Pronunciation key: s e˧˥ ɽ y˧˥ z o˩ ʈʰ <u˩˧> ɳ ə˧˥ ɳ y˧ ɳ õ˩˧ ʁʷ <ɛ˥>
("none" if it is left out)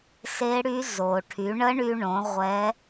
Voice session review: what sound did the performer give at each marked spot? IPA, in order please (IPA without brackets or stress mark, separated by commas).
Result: y˩˧, ɛ˧˥